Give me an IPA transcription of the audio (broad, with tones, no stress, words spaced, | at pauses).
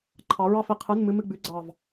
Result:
ǃʰɑ˨˦ɹɑ˥˧f i˨˦qʰɨ˧˥˧nmɨ˧˥˧mɨ˥˧ ɡ͡bʉ˨˦ɡ͡ǀɑ˧˩v